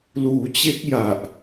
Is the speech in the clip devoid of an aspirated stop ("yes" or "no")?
yes